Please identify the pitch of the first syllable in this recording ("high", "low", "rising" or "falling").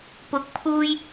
rising